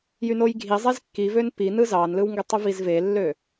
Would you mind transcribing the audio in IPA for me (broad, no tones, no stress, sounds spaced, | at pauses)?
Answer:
j y n o j ɡʱ i zˤ e z kː i v ø n p i n ɯ z ɑ n l ɯ w ŋ ɡ ø tˤ u v i z v e lː ø